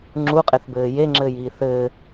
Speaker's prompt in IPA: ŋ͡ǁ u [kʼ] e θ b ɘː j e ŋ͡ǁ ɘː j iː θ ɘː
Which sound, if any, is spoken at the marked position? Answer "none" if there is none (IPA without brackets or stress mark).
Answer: qʼ